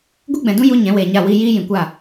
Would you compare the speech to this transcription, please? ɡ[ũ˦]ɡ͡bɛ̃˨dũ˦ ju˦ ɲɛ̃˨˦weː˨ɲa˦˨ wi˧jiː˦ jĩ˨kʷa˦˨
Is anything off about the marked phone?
yes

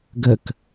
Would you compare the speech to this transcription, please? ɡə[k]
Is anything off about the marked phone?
no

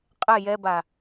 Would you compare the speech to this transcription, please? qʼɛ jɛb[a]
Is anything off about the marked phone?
no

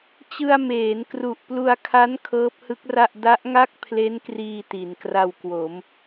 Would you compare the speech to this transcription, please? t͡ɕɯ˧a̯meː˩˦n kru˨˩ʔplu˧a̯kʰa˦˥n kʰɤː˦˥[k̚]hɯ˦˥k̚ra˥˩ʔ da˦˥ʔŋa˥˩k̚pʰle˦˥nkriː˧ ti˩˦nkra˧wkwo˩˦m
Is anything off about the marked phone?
yes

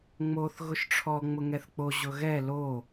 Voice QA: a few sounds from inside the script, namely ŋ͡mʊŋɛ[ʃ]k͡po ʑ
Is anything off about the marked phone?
yes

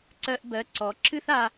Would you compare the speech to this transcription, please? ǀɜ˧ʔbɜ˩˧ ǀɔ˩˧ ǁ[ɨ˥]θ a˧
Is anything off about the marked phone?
no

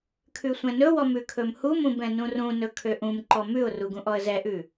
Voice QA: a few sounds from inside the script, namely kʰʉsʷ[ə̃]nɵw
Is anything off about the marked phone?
yes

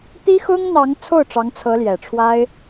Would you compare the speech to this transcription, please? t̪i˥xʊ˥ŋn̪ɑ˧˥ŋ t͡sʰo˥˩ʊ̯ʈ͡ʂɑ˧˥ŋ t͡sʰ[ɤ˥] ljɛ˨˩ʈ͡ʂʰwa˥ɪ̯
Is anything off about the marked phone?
yes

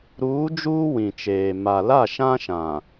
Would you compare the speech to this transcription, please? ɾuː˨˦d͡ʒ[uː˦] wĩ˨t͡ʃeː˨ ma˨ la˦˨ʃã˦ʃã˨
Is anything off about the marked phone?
no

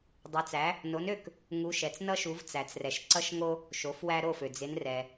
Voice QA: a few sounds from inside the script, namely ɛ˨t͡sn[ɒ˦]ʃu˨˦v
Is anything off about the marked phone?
yes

